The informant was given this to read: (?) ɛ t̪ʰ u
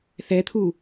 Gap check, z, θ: θ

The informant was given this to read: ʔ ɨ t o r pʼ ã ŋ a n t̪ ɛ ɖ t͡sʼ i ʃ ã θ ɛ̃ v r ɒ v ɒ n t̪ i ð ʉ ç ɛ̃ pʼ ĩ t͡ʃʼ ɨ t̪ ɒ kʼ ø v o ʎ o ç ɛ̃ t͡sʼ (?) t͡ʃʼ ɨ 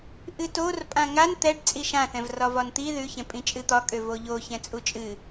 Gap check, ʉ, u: u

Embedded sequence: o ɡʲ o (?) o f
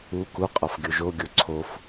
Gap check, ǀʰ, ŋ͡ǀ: ǀʰ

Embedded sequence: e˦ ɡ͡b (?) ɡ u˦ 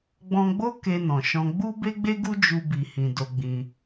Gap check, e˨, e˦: e˦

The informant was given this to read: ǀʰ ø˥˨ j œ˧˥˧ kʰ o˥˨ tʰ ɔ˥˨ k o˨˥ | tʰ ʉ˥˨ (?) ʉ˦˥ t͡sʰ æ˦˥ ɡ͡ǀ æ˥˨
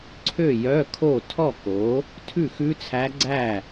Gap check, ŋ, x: x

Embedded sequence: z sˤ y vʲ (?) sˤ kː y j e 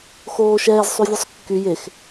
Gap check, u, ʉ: ʉ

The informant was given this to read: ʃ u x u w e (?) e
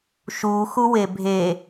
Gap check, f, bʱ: bʱ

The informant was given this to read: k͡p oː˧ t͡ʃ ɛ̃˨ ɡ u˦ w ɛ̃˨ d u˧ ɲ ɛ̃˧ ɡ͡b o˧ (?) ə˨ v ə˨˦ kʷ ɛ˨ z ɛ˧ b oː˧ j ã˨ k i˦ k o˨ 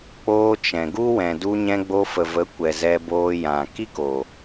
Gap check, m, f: f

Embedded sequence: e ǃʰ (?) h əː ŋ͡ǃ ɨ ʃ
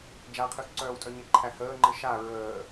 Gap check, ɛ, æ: æ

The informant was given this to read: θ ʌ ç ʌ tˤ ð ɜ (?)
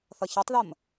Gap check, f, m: m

